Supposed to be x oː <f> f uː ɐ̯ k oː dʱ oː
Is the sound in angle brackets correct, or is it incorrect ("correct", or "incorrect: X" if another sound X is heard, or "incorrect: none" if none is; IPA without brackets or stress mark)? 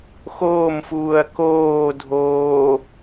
incorrect: m